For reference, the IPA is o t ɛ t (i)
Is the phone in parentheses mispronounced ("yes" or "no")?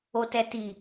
no